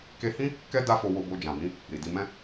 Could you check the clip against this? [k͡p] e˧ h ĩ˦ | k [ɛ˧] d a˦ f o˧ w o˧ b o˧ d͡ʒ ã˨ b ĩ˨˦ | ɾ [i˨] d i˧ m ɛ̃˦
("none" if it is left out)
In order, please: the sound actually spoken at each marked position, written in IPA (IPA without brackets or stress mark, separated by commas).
k, ɛ˦, i˨